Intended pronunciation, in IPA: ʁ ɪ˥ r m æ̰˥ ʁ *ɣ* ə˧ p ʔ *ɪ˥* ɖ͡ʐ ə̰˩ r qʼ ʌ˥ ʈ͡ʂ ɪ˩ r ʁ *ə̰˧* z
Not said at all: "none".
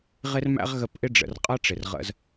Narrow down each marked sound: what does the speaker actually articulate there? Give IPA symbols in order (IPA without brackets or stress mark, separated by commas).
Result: ɣ, ɪ˥, ə̰˧